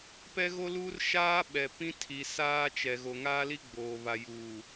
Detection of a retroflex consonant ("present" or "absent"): absent